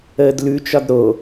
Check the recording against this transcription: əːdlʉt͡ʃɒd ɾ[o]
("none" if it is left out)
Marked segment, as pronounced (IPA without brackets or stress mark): o